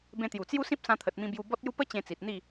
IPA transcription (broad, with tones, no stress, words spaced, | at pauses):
bẽ˧t̪ju˨˩t͡sju˦sĩ˦p̚ sã˧t̪ʰə˨t̚mĩ˧ bju˧bɔ˦t̚ju˦ pə˦ t͡ɕẽ˧t͡si˨t̚n̪i˥˧